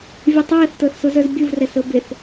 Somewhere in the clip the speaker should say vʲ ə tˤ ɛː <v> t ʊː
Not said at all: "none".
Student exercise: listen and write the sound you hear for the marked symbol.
θ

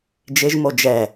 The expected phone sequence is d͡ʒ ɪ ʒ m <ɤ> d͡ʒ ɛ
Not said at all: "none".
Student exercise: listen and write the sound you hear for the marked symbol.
o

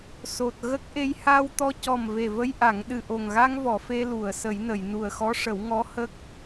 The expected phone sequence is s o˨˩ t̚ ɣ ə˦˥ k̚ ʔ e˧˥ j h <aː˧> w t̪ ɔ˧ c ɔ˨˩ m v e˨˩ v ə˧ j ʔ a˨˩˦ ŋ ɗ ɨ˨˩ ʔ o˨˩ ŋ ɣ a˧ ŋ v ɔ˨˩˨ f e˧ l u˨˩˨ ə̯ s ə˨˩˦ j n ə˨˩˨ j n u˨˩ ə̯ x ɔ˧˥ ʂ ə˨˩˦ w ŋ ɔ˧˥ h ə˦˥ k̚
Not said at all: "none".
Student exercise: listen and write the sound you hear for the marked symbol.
aː˧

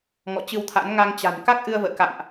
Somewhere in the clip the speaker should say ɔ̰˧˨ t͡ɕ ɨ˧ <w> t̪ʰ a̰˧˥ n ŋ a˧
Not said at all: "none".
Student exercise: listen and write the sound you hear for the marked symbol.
w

